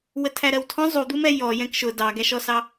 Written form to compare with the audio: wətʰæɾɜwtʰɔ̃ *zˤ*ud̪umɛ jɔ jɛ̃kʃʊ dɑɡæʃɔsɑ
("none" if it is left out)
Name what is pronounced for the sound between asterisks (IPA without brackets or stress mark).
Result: zˤ